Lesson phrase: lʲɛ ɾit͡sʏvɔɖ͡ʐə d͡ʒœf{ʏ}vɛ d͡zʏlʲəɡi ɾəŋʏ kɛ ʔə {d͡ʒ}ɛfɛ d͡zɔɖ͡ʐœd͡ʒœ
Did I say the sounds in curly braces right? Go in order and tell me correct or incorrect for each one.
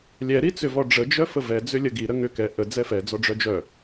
incorrect: ə, incorrect: d͡z

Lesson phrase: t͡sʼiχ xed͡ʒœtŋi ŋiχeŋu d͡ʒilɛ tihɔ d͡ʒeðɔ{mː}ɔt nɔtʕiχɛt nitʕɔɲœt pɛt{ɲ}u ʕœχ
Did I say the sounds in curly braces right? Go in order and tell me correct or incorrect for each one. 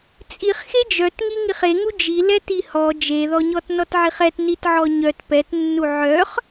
incorrect: ɲ, incorrect: nː

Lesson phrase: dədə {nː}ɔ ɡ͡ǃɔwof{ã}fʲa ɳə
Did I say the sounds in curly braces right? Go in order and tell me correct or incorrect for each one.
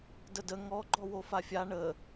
incorrect: ŋ, incorrect: a

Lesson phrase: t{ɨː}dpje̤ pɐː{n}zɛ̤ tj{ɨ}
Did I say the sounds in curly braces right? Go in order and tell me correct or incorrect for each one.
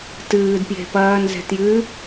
correct, correct, correct

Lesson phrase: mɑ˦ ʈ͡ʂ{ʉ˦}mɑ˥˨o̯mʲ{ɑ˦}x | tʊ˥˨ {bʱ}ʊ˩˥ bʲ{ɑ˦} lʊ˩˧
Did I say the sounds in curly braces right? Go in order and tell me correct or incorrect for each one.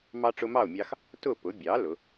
incorrect: ʊ˦, correct, incorrect: p, incorrect: ɑ˩˥

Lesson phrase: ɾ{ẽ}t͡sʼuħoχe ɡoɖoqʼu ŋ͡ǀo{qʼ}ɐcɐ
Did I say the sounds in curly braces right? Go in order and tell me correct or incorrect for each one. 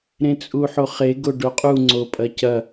correct, incorrect: pʼ

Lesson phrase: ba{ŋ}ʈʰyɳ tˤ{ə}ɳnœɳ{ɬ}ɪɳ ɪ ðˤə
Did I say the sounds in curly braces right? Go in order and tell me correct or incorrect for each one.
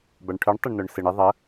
incorrect: ɳ, correct, incorrect: s

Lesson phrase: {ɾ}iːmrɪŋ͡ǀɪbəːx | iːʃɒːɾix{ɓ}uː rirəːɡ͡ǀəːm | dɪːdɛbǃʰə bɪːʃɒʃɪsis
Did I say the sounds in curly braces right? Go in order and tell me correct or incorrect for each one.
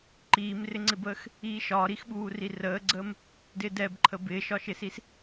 incorrect: ǃ, correct

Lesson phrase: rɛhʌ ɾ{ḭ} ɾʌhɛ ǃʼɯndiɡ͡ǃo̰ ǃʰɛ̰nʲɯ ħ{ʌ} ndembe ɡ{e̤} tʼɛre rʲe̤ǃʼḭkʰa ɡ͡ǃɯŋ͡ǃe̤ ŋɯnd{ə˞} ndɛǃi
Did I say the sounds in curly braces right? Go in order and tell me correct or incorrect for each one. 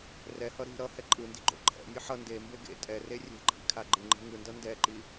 incorrect: i̤, correct, incorrect: ḛ, incorrect: ʌ

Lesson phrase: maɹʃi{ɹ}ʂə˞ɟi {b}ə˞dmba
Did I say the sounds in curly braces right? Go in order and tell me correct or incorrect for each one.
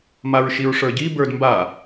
correct, correct

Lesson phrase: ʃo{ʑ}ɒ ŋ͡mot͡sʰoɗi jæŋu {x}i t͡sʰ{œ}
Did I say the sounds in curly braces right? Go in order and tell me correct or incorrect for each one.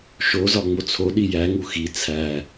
incorrect: z, correct, incorrect: æ

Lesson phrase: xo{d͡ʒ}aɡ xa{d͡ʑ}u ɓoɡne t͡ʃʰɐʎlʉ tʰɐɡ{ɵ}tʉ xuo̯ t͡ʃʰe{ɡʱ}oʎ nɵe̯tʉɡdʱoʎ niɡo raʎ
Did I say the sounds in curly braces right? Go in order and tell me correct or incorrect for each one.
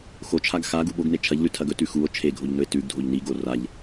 incorrect: t͡ʃʰ, incorrect: ɡ, correct, correct

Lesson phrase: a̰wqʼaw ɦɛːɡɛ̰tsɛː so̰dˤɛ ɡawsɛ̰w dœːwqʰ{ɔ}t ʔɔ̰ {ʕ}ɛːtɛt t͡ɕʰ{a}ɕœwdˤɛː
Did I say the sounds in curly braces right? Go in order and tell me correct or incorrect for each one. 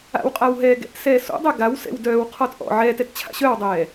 correct, correct, incorrect: a̰

